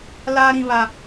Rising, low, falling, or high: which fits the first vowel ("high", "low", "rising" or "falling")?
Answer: high